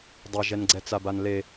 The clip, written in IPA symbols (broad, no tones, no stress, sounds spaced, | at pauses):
dˤ a ʒ ɛ n ɡ͡ǀ ɛ t͡s a b a n l e